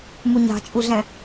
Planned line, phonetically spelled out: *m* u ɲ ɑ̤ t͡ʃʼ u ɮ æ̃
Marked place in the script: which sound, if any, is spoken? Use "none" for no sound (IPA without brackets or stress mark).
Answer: m